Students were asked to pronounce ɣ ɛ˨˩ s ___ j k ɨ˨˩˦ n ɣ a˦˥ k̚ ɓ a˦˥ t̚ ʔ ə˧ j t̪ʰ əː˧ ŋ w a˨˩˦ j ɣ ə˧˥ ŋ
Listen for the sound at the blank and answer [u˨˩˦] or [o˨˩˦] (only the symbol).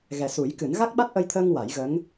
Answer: u˨˩˦